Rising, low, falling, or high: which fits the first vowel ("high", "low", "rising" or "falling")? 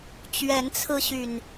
rising